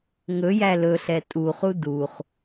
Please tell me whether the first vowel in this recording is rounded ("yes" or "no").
yes